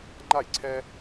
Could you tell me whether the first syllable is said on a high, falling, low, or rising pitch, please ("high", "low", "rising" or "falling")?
falling